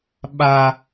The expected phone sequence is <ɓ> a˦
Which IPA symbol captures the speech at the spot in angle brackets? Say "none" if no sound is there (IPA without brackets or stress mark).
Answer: ɓ